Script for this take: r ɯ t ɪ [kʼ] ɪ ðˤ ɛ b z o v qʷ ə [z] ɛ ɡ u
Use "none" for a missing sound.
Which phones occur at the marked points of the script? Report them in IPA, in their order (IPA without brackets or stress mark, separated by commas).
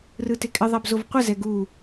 kʼ, z